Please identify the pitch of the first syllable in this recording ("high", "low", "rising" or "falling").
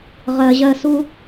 low